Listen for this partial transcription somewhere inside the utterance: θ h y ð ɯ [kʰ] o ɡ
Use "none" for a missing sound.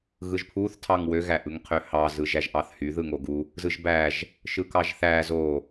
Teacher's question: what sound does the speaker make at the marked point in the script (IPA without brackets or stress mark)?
ŋ